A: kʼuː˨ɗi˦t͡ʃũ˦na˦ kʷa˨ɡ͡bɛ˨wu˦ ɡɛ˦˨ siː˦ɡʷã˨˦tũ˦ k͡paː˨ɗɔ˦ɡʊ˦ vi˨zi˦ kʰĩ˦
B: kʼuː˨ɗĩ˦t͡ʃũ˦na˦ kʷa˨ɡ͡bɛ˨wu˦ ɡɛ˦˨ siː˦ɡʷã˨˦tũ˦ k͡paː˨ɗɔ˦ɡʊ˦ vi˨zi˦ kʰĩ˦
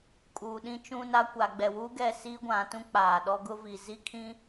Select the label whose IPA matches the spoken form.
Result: B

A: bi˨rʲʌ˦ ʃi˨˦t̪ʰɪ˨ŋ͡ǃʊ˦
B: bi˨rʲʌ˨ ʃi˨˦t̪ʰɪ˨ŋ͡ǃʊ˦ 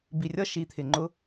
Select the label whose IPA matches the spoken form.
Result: A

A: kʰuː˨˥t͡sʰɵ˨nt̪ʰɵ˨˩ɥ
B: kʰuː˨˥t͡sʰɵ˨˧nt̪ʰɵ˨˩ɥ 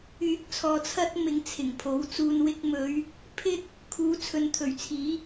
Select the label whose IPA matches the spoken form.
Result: B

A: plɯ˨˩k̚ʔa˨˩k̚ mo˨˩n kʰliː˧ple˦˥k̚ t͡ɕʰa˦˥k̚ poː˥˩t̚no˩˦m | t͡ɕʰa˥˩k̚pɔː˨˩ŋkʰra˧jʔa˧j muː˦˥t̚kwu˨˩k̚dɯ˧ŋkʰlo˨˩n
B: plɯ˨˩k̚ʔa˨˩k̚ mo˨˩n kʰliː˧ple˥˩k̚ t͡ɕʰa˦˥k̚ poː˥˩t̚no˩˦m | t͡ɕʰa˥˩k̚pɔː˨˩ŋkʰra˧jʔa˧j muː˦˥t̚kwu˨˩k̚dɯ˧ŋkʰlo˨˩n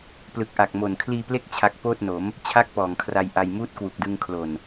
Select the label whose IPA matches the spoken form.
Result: A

